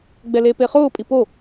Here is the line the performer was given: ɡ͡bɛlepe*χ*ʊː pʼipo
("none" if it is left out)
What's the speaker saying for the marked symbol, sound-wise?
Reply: χ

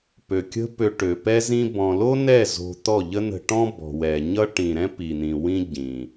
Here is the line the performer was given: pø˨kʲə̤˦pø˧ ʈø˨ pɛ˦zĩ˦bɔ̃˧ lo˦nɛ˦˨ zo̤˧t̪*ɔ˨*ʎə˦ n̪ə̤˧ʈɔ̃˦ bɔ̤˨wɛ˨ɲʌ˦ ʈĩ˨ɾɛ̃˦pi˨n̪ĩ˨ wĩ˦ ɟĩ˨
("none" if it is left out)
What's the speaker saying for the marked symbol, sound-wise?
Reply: ɔ˦˨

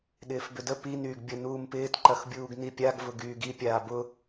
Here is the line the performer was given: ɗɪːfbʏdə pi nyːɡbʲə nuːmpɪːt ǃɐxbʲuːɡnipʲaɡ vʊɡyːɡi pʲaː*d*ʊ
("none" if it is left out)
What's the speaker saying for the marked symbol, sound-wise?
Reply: b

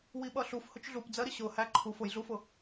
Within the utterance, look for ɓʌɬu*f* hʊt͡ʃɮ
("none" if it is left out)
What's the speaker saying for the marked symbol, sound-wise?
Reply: f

